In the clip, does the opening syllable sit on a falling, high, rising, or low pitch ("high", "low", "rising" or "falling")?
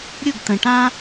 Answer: falling